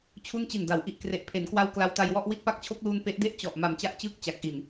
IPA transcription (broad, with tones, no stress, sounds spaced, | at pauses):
t͡ɕʰ u˥˩ n t͡ɕ i˨˩ n d a˩˦ w ʔ i˨˩ ʔ k r e˨˩ ʔ pʰ e˩˦ n k w a˦˥ w k l a˧ w t a˧ j w ɔ˥˩ ʔ w i˥˩ t̚ p a˦˥ k̚ t͡ɕʰ o˦˥ k̚ l uː˧ n p e˦˥ ʔ d e˥˩ ʔ t͡ɕ ɔ˨˩ ʔ m a˨˩ m t͡ɕ a˥˩ ʔ t͡ɕ ɯː˥˩ k̚ t͡ɕ a˨˩ k̚ ʔ i˨˩ n